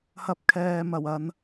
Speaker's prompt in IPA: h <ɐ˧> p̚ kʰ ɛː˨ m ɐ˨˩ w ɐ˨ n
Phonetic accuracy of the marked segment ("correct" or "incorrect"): correct